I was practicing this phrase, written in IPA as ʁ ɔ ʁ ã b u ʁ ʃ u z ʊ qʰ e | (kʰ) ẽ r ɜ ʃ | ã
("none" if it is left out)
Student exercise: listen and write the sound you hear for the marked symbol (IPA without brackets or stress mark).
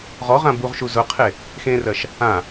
x